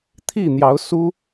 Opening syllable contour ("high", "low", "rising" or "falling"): falling